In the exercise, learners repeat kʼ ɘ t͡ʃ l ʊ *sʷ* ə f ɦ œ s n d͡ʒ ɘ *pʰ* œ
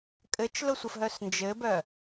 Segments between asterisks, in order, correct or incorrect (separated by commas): correct, incorrect